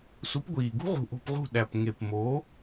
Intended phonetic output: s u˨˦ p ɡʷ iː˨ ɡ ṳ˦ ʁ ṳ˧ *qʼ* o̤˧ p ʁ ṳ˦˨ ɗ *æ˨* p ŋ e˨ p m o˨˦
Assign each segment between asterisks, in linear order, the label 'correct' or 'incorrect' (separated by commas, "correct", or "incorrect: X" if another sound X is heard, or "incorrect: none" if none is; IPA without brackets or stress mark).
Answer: incorrect: ʔ, correct